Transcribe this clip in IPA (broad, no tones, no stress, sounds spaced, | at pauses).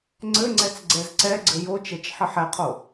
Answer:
ŋ͡ǀ ɘ ŋ͡ǀ ɛ t͡s ɡ͡ǀ ɛ z ǀ ɛ ɡ͡ǀ ɘ j o t͡ʃ ɛ t͡ʃ ħ ɘ ħ ɛ qʰ o